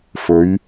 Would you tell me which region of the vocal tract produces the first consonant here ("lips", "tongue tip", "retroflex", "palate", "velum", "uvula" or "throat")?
lips